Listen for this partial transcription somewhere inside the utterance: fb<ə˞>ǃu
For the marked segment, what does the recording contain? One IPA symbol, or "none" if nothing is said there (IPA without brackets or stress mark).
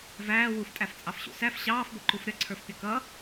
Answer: ʌ